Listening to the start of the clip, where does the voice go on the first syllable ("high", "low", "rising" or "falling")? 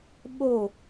falling